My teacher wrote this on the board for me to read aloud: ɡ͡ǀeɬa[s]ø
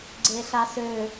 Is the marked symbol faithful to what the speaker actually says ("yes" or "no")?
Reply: yes